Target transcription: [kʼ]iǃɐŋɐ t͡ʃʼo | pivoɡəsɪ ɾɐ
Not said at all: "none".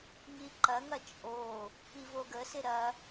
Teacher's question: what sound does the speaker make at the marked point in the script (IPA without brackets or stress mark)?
ŋ